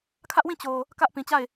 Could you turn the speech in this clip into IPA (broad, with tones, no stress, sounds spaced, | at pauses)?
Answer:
kʰ ä˦ ʔ w ĩ˦˨ t͡ɕ o˨ | k ä˦ ʔ p ĩ˨ t͡ɕ a˦˨ ɪ̯